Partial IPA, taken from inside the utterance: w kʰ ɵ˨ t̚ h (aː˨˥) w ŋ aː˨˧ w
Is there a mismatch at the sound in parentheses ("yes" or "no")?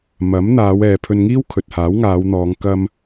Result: no